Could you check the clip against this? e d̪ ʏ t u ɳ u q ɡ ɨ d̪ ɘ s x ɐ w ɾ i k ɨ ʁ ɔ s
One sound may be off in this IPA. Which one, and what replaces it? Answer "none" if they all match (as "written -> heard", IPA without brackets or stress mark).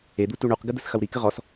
ʏ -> u